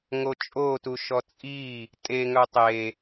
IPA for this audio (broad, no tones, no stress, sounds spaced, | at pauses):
ŋ o t͡ʃʼ o t u ʃ ɔ t͡sʼ i | tʼ e ŋ œ tˤ e